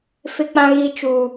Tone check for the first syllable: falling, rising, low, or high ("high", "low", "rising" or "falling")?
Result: high